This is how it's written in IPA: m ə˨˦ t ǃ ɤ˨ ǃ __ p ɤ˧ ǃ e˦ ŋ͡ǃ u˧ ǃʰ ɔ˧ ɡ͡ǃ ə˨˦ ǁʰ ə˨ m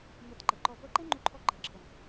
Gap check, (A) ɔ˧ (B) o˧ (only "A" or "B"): A